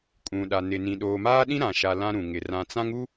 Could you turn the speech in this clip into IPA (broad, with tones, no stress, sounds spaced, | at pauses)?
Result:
kʼ ũ˨ ɗ a˨ n ɪ˨ n ĩ˨ ɗ oː˨ m aː˦ ɗ ĩ˦ ɾ ã˨ ʃ a˨ l ã˦ ɾ ũ˨ ŋ ɪ˨ r ã˨ t͡s ã˦ ŋ u˦